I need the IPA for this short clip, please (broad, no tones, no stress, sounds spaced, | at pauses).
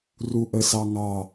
r u ʔ ə s ɑ ŋ ɑ